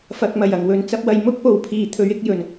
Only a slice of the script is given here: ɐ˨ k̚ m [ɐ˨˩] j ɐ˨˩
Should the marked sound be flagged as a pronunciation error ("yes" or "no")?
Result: no